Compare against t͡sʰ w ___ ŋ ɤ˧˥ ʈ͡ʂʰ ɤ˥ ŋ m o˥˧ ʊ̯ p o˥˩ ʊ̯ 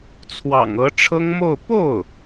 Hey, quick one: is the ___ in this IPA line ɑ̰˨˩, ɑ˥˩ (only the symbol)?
ɑ̰˨˩